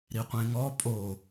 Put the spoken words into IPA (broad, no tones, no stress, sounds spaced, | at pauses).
ɾ i qʷ ẽ ŋ ɔ pʼ o